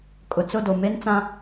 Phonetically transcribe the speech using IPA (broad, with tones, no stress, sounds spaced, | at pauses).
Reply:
kʼ ʊ˨ t͡s ʊ˦˨ d o˨ m e˦ n t͡s ã˦